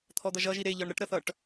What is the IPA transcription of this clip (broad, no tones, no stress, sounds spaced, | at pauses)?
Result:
t̪ʰ ɔ d̪ ʌ ʒ ʌ ʒ i ɾ e ʎ ɒ ɳ ɾ ə ʈ ɾ ə θ ʌ ʈ